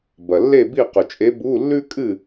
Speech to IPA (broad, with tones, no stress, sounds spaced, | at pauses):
b ɐ˨ lː e˥˨ b i˥˨ q ɵ˨ t͡ʃʼ e˧˥ b u˧˥˧ lː ʉ˥ kʼ ɨ˥˨